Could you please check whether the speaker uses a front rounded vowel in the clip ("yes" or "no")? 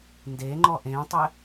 no